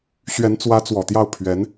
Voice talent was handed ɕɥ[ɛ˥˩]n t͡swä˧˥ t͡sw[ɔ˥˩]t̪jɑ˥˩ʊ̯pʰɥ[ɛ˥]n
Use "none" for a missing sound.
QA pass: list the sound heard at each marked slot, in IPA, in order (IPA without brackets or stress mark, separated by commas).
ɛ˧˥, ɔ˨˩, ɛ˧˥